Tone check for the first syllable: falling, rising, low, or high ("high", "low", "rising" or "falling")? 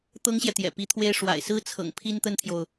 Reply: high